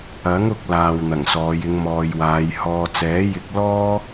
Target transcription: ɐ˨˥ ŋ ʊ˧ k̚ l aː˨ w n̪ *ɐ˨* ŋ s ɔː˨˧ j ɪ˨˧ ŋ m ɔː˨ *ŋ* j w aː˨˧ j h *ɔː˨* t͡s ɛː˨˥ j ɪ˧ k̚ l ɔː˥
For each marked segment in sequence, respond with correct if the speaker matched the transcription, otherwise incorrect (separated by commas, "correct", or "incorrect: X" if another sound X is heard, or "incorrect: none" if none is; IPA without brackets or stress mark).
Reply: incorrect: ɐ˨˩, incorrect: none, correct